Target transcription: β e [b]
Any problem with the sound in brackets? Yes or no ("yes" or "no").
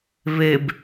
no